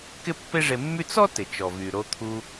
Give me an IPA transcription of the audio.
k ɪ˥ pː e˥ ʐ e˧ mː y˥ t͡s ɔ˥ t ɪ˩ t͡ʃ ɔ˩ v y˩ ɾ o˧ t̪ʰ u˧

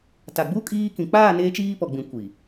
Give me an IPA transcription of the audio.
t a˨ ɡ͡b u˦ kʼ iː˦ k ĩ˨ k͡p aː˦˨ n eː˦ t͡ʃ iː˦ p ɔ˨ ɡ͡b ĩ˨ kʷ i˨

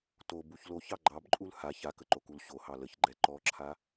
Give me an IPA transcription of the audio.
t o b u ç l o ç ɑ ɡ͡ǃ ɑ b ǃʼ u l h a ç a k ə ǃ o k u l ɕ o h ɑ l ə ç ɡ͡ǃ ɛ ǃ ɔ ǁʰ a

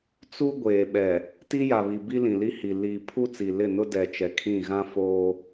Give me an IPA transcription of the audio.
t͡s u˦ ɡʷ eː˨ ɓ ɛ˨ | t i˦ j a˨ β i˨ b i˦ l ĩ˨ l i˦ h i˨ l i˨ pʰ u˦ t͡s i˨ l ɪ˦˨ n ʊ˦ d ɛ˨ t͡ʃ ɛ˨ kʰ ĩ˦˨ ɣ ã˦ f oː˦

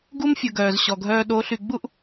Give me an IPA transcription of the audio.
ɡ u˦ m fʲ ʊ˨ ɡ œː˨ z ɕ ɔ˨ ɡʱ œː˦ ɗ o˨˦ ɬ y˨ ɡ͡b u˦ ʔ

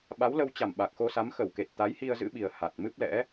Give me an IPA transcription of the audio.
ɓ a˨˦ w l ə˧ w t͡ɕ a˧˩ m ɓ a˨˩ k̚ x o˧ s a˨˦ m x ə˧˩ w k e˨˩ t̚ t̪ a˨˦ j h i˧ ə̯ z ɨ̰˧˥ ɓ i˨˩ ə̯ h a˨˩ t̚ m ɨ˦˥ p̚ l ɛ̰˧˥

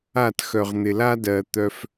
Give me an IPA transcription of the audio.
a˦˨ t x œ˨ ʁ n̪ ɪ˨ l a˦ d ɜ˨ t̪ œ˧ f

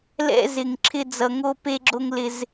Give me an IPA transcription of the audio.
l ɛ̰˥ z ɪ˧ ŋ ǁʰ ɪ˥ d͡z ʌ˧ ŋ o˥ p e˥ ɡ͡ǁ o˥ ŋ l ɪ˧ z

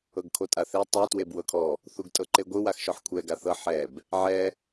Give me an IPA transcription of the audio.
ɤ ɡ kʰ o tʼ a θ e tˤ ɛ t w e b w ɤ kʰ ɔ | θ u ɡ tʼ ɤ ǃ e ɡʷ ɯ w a x ʃ ɔ ħ kʷʰ ɛ ɡ a θ ɤ ħ ɛ b | ʕ ɛ

